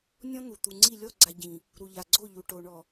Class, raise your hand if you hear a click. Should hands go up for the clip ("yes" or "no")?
yes